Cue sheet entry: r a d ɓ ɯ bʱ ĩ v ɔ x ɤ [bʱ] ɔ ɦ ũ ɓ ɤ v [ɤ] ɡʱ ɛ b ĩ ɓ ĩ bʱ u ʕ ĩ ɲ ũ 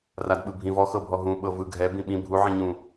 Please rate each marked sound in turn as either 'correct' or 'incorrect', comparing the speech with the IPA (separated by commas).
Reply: correct, incorrect